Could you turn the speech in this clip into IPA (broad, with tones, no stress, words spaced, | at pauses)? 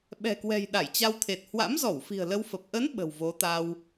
ɓɛ̤˨˩kwɛ̤˨˩j ɗa˧˩jt͡ɕa˧wt̪ʰe˨˩t̚ hwa̰˧˥mzɔ˧˩wfi̤˨˩ə̯ lə˧wfə˨˩p̚ ʔə˨˦n ɓə̤˨˩wvo˨˦t̪a˧w